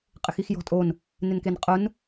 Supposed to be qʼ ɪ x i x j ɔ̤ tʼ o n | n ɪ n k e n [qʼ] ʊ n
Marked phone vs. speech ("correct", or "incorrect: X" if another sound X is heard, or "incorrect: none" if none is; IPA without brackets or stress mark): correct